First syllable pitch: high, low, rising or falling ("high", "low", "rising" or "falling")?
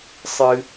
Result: high